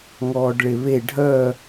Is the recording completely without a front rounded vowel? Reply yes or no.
no